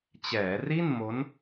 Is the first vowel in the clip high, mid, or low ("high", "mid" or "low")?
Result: mid